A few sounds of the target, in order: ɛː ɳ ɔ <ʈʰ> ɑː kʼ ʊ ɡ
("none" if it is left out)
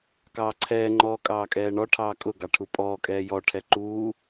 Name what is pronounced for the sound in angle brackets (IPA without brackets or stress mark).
ʈʰ